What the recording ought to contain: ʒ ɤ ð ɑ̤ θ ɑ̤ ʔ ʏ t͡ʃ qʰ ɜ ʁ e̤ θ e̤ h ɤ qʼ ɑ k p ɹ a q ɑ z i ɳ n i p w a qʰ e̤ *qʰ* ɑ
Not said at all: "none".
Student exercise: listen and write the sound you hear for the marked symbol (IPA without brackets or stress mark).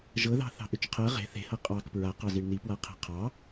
qʰ